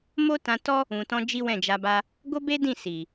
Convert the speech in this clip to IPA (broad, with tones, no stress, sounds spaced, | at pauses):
m o˦ t ã˧ t ɔ˦ | ũ˨ t ɔ̃˧ d͡ʒ i˦ w ɛ̃˦˨ d͡ʒ a˧ b a˦ | ɡ o˦ b e˦ d ĩ˦˨ s i˨